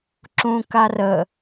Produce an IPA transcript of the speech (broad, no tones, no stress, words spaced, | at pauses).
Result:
ǁũkarə